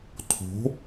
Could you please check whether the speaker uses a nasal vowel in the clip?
no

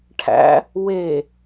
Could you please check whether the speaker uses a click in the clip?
no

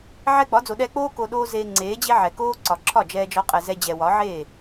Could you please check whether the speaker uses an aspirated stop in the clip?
yes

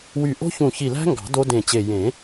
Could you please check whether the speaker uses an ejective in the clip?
no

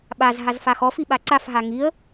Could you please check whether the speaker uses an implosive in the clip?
yes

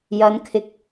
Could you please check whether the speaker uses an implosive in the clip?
no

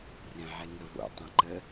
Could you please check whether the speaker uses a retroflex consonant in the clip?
no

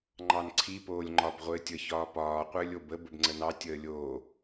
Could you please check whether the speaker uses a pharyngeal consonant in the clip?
no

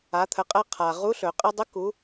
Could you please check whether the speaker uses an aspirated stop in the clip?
yes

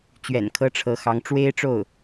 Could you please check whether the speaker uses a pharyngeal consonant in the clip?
no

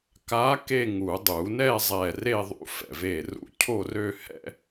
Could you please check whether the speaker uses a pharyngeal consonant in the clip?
no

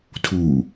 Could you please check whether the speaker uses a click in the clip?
no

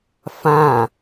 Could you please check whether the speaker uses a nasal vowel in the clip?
yes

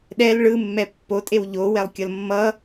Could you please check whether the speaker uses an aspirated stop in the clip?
no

